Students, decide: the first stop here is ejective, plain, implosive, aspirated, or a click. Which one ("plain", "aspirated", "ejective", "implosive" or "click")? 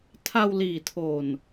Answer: aspirated